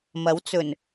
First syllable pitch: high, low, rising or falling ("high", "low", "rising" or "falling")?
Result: rising